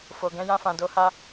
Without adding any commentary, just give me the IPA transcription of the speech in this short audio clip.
f o˨ ɡ ɛ̃˧ j ã˧ f ã˨ d o˧ h a˧

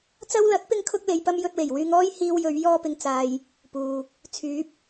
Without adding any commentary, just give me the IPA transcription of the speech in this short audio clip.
t͡s ɐ˧ w l ɐ˨˥ t̚ p ɪ˥ ŋ kʰ ʊ˥ k̚ l e˧ j p ɐ˥ m j ɵ˧ t̚ w e˨˩ j w yː˧ ŋ ɔː˥ j h iː˧ w j ɵ˨˧ ɥ j ɔː˥ p ɪ˧ ŋ t͡s aː˧ j | p uː˧ | t͡sʰ yː˨˥ p̚

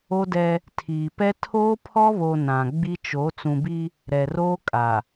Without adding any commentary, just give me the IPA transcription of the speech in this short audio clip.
o˦ d ɛ˦ | tʰ iː˨ p ɛ˦ tʰ oː˦ pʰ ɔ˦ β o˨ n ã˨ ɡ͡b i˦ t͡ʃ o˨˦ t͡s ũ˨ b i˦ | ɾ ɛ˨ r oː˦ kʼ a˨

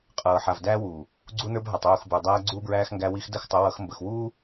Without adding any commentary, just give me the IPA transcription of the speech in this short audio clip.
qʼ ɤː˨ ħ a˨ v d æː˦ w uː˨ | ɡ͡ǀ u˦ n ə˞˦ b ɦ a˨ tˤ uː˦˨ x b ə˞˨ dˤ æː˦ ɡ͡ǀ uː˦ b ɹ æː˦ x ŋ ɡ æ˦ w i˦ x d ə˦˨ x tˤ ə˨˦ w ʌ˨˦ x m b ə˨ x w uː˦

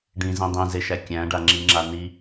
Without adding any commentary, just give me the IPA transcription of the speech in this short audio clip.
ɖ ĩ z ĩ dˤ ĩ z e ʃ æ kʲ æ̃ ɖ a ŋ͡ǁ i ŋ͡ǁ a n i

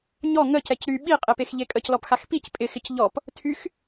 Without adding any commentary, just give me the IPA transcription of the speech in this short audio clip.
ɲ ɔ ŋ ə c ɛ c ɾ y ɓ i qʼ e p e x ʎ e kʼ ə c l ɔ p x a x p i c pʼ ɪ x ɪ c ʎ ɔ p | tʰ y x

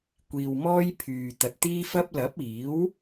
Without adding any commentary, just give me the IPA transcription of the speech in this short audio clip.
kʷ iː˨ w m ɔː˥ j pʰ yː˨ t̪ ɐ˨ t̚ t̪ iː˥ f ɐ˥ p̚ l ɐ˨˥ p̚ iː˨˥ w

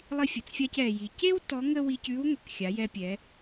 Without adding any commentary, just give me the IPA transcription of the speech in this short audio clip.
lˠ i˧ fʲ ə˩ t͡s fʲ a˧ c ɛ˩ j i˩ c e˥ w t ɔ˧˥ ŋ ə˥ w i˧ c ʉ˧˥ w ŋʷ ɛ˩ k xʲ a˩˧ j ɛ˧ pʲ ɛ˩˧

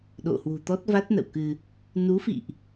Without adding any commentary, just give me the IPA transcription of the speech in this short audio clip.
ɗ o̰˧˨ h w ṳ˨˩ t̪ ɔ˦˥ t̚ v a˦˥ t̚ n ə̰˧˨ w k ɨ˧ | n u˨˦ f ḭ˧˨ ʔ

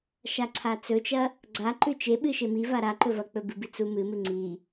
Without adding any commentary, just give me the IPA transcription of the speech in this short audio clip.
ʃ a ǀʰ a t͡s ɵ t͡ʃ ɐ | ɡ͡ǀ a ǃ ʉ t͡ʃ e ɓ ɨ ʃ e m i v a ɾ a ǃ ɵ v ɐ k͡p ɵ b ɨ b i t͡s u m ɨ m ɨ ŋ͡ǀ i

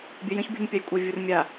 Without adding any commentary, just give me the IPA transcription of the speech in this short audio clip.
bʲ œ j ə̃ ç bʲ ṳ ɲ pʲ a j kʷʼ a vʲ u r mʲ a

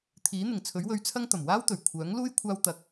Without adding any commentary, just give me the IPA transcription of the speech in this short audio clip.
t̪ʰ iː˨˥ n̪ ɪ˨˩ ŋ t͡sʰ ɵ˨˥ ɥ w ɵ˧ ɥ t͡sʰ ɐ˥ ŋ t̪ ɐ˨˩ m w aː˥ w t̪ ɵ˨˩ ɥ kʷʰ œː˨˥ ŋ l uː˥ j kʷʰ aː˥ w t̪ ɐ˧ k̚

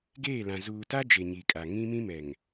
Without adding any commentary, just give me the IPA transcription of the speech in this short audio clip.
ɡ eː˦˨ l ã˨ z uː˨ t a˦ d͡ʒ e˨ ɲ i˨ kʼ a˨ ŋ ĩ˦ m ĩ˦ m ɛ˨ ŋ

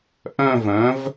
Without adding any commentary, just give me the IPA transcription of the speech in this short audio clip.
ʔ œ̃˥˧ v œ̃˩˥ v

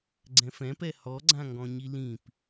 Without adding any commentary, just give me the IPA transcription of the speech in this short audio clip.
ɡ͡ǀ ɛ̃ f ɛ̃ p ɛ h ɔ ɡ͡ǀ ã ŋ ɡ ɔ̃ ɲ i l ĩ p

